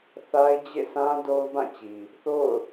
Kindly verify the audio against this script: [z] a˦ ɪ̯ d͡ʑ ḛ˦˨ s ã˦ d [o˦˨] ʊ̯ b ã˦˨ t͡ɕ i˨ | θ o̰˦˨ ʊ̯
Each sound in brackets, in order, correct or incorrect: incorrect, incorrect

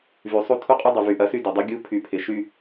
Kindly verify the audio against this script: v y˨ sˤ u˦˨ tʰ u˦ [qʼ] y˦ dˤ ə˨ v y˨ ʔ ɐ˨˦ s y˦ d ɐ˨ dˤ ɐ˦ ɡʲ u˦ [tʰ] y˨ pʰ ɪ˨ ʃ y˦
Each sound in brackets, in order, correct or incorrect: correct, incorrect

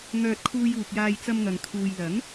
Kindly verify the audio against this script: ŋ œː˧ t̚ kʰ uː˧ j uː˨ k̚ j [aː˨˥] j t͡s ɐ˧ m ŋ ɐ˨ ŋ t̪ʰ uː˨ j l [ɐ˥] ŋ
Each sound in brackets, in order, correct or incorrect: incorrect, incorrect

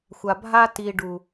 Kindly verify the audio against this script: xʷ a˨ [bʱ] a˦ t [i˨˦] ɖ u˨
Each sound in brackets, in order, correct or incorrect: correct, incorrect

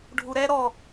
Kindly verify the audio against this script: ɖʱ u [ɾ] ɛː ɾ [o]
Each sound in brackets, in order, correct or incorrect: correct, incorrect

